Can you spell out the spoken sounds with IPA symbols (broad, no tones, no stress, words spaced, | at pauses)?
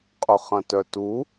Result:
qʼʊχɐ̃tœtu